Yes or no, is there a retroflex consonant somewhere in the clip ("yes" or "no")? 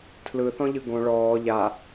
yes